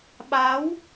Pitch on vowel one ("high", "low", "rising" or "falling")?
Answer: rising